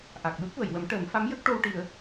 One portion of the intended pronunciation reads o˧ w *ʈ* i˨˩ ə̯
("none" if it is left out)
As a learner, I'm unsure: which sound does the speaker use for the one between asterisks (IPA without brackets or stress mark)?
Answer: ʈ